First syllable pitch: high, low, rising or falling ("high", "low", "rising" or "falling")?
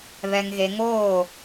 low